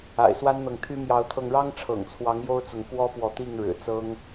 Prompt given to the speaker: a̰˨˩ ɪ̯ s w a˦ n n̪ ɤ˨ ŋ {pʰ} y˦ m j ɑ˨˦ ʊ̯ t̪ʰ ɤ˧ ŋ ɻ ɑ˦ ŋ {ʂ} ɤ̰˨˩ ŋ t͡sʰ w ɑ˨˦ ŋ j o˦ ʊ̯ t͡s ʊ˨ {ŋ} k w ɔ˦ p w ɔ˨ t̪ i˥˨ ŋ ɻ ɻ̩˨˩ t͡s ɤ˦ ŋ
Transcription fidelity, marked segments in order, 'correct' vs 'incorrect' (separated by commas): incorrect, incorrect, correct